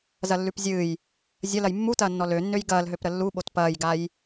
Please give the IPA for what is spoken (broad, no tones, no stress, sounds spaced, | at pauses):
z ɐ lː ʉ p zʲ ɨː j | zʲ ɐ l ɐ j mː u t ɐː nː ɔ l ø nː ø j ɡ ɐː l ɦ ø p ɾ ə lː u ɓ o t p ɐː j ɡ a j